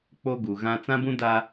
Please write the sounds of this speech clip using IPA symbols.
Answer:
k͡p o˦ ɡ u˨ ɣ ã˦ t͡s ã˦ b ũ˦ d a˦

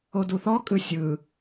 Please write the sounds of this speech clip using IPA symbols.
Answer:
o d u θ ɔ kʼ ɯ sʲ ɯ

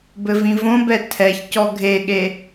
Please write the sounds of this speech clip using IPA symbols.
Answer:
b ɘ v ĩ v õ b ɛ tʰ ɛ ç c ɔ ɡʱ e ɠ e

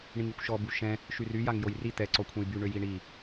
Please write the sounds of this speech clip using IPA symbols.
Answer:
ɳ ĩ ŋ i kʷ ʃ ɔ b u ʃ ɛ̃ | ʃ y r y j a ŋ j o j r i t̪ ɛ ǀ ɔ kʷʰ ɛ̃ j b y ɳ ø j i ɳ i

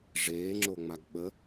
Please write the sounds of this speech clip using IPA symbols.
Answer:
ʐ eː ŋ͡ǁ o ŋ͡m a ɡ ɓ ə

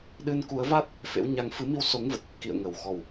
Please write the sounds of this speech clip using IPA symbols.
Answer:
ɗ ɨ˧ n k u˨˦ ə̯ v a˦˥ t̚ | f ḛ˧˥ w ɲ a˨˦ ŋ f ɨ˨˦ m i˧ w s o˨˦ ŋ v ə˨˩ t̚ | k ḭ˧˨ ə̯ ŋ ə˨˩ w x ɔ˨˩ w

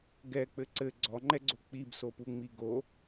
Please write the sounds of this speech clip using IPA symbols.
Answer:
ɡ ɛ k͡p ɘ ǀ ɘ ɡ͡ǀ ɔ ŋ͡ǃ ɛ ɡ͡ǀ o k͡p i b s o p u ŋ͡m i ɡ o

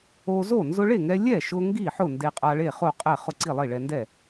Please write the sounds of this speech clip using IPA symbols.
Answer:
o˧ z o˥˩ n z ʊ˧ ɭ e˥˩ ŋ ɛ˧ lʲ ɛ˥˩ ʃ ʊ˧ ŋ ɡ i˥˩ ħ ʊ˥˩ n d e˧ qʼ a˧ ɭ e˥˩ χ o˥˩ qʼ ɛ˥˩ χ ʊ˥˩ ǀ i˥˩ lˠ i˥˩ ɭ ɛ˧ n d ɛ˥˩

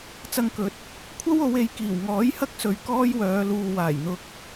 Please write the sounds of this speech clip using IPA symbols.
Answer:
t͡s ɐ˧ ŋ k ɵ˨˥ t̚ | kʷʰ ɐ˥ w o˨˧ w e˨ j k iː˨˩ w ŋ ɔː˨˥ j h ɐ˥ k̚ s ɵ˨ ɥ k ɔː˥ j w œː˨˧ l uː˨ w aː˨˩ j n̪ ʊ˨ k̚

